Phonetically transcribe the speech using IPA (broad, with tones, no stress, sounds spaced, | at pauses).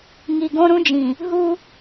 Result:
ŋ i˨ ɡ õ˦ ɾ ũ˦ d͡ʒ ĩ˨ | ɦ u˦